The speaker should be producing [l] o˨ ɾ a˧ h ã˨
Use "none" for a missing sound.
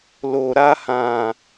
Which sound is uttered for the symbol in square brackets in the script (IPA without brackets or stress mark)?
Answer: l